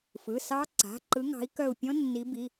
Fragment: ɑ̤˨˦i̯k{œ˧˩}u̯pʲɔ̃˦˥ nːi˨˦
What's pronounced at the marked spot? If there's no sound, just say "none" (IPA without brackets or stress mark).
œ˧˩